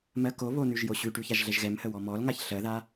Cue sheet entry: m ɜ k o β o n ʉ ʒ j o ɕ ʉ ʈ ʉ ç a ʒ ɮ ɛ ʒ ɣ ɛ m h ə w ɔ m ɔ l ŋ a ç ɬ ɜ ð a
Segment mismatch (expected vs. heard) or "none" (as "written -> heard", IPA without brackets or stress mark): none